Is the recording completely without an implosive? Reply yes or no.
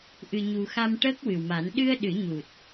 no